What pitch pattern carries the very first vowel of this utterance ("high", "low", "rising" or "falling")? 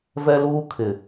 high